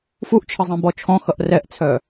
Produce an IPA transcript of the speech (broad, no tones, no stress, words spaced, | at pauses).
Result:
fuʔt͡ʃʰəzˤĩbɔ t͡ʃʰɔ̃xʌʔ rɛʔt͡sʰœ